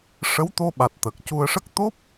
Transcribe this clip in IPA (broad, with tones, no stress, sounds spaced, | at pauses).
ʂ ə˧˥ w t̪ o˧ ɓ a˨˩ t̚ t̪ ə˨˩ k̚ c u˧ ə̯ ʂ ə˦˥ k̚ t̪ o˦˥ p̚